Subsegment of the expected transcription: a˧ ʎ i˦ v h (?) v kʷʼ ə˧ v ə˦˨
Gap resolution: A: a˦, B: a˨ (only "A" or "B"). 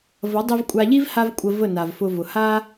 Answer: A